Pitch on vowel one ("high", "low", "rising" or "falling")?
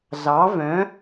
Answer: rising